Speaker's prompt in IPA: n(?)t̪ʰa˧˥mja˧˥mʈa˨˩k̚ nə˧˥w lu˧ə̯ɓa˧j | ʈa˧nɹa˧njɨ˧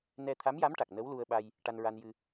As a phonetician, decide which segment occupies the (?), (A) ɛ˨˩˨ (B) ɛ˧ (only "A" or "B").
B